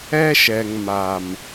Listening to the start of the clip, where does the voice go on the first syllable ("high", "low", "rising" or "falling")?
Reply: high